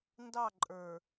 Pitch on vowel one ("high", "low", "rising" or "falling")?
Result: falling